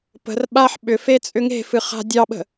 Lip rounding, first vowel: unrounded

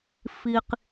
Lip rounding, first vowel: unrounded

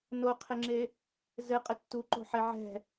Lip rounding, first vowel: rounded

